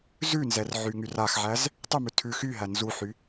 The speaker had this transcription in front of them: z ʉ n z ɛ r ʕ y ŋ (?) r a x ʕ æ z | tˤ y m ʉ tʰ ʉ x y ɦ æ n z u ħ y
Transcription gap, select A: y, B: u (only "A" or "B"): A